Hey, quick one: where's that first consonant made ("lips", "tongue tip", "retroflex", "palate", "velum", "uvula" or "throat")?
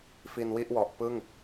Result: lips